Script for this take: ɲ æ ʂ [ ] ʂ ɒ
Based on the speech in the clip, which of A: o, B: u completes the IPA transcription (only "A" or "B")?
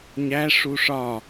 B